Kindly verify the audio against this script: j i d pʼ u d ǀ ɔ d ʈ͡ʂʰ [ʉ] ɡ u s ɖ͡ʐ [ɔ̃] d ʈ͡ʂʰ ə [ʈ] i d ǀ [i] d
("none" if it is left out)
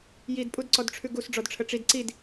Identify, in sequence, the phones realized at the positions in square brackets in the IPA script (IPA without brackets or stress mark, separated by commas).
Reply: ʉ, ɔ, ʈ͡ʂ, i